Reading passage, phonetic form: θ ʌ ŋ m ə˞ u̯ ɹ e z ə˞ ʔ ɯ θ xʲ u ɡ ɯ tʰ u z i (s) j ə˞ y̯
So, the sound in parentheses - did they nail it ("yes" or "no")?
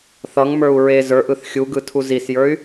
yes